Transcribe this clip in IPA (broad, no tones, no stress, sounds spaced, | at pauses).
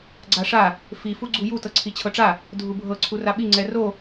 ɡ͡ǀ a ʂ a | f i f u ɡ͡ǀ u j u t ɤ ǀʰ i t͡ɕʰ ɤ ʈ͡ʂ a | dʱ u bʱ ɤ ǀʰ u r a ɓ i ŋ͡ǀ ɛ r o